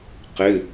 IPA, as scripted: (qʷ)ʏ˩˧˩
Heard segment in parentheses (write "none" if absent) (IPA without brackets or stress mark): q